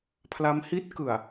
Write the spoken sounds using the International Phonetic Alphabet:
pʰ l a˦˥ m h i˦˥ t̚ k ɯ˨˩ a̯

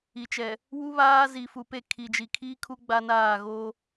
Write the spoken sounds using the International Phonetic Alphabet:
i˨ t͡ʃ ɛ˨ | w u˦ β aː˦ z i˨ f u˨ p e˦˨ kʰ i˨ d͡ʒ i˨ kʰ iː˦ kʰ u˦ ɡ͡b a˦ n aː˦˨ ɣ oː˦

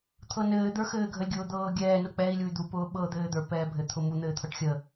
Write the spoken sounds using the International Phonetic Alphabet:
t̪ʰ ɤ n ɘː d̪ ə˞ x ɘː ɡʱ ə lʲ ɡʲ ʊː d̪ ɤː ɡʲ ɛː n ʊ k͡p ɛ i̯ lʲ u y̯ d̪ u p ʊː ɓ ɤ d̪ ɘː d̪ ə˞ p ɛː bʱ ɘ t̪ʰ ʊ m u n̪ ɘː t̪ʰ ɤ ʈ xʲ ə

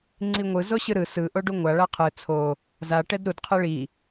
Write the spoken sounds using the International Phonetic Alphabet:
ŋ͡ǀ i ŋʷ ɯ z o ɕ ɯ ɾ ɯ s ɯ ʔ o ɖ u ŋʷ a ɭ a qʰ ɯ t͡sʰ o | z a ʈ ɛ d ɾ u d qʰ e ɭ i

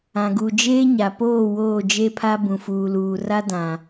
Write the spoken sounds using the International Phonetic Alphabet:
ã˨ ɡ u˨ d͡ʒ eː˦ ɲ a˨ p oː˦˨ w oː˦˨ d͡ʒ e˦ pʰ a˦ b ũ˨ f uː˨ l uː˨ r a˦ d ã˨

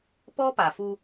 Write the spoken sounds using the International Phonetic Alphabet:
p ɔ˦ p a˨ f u˧

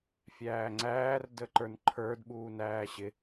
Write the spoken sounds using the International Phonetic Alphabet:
fʲ æː ŋ͡ǀ æː r d ə ǃ ə˞ n ǃʰ ə˞ d ɓ uː n æː ɕ ɪ

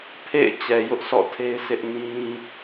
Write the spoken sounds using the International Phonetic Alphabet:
pʰ ḛ˦˨ ɪ̯ t͡ɕ ɛ˨ j ʊ˦ ʔ s ɔ̰˦˨ tʰ e˦ ɪ̯ sʰ ɪ˦ ʔ n ĩ˦

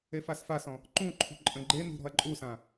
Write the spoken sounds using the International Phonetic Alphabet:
e f a s f a s ɔ̃ | ǃ ũ ǃʰ ṳ ǃʼ ə̃ ɡ͡ǃ e n ṳ ɾ ɔ̤ ɐ̯ ǃʼ u s ã

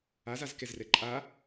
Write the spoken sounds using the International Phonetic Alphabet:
a z a z k ɛ z r ɛ ǃʼ a

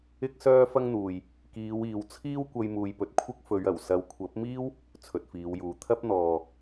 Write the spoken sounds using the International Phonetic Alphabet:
ɪ˥ k̚ s œː˥ f ɐ˥ ŋ n̪ uː˨ j | k iː˨˧ w iː˨ w t͡sʰ iː˥ w kʷ ɐ˧ j m uː˨ j p ɵ˨ t̚ kʷʰ ɪ˥ k̚ f ɵ˨˧ ɥ ɐ˨˩ w s ɐ˨ w kʷʰ ɐ˨˥ p̚ m iː˥ w | t͡sʰ ɵ˨ t̚ f iː˨˧ w j uː˨ t̪ʰ ɐ˥ p̚ n̪ ɔː˨

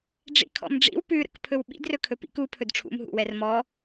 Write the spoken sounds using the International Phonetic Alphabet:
ɖ͡ʐ ḭ kʰ ɔ̰ m ɖ͡ʐ ḭ w p ʉ ɾ ə̰ k pʰ ɵ w ɓ ḭ d r ɵ kʰ ɵ p ḭ k u pʰ ɵ d ʈ͡ʂʰ ṵ m ɦ ṵ w ɛ r m ɔ

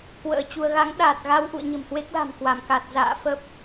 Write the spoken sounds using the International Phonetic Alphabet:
k w ə̰ː˧˥ t͡ɕ u˧ ə̯ ɣ a˨˦ ŋ ɗ aː˨˩ t̚ ɣ a˧ w ʔ ṵ˧˨ ə̯ ɲ ə̤˨˩ m h w e˦˥ k̚ l a̤˨˩ m k w a˧˩ m k a˨˩ t̚ z a̰ː˧˨ f ə˦˥ p̚

